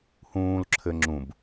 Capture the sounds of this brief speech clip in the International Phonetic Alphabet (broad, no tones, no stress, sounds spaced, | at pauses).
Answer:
h ũː l ǁʰ ɘ ŋ͡ǁ ũ b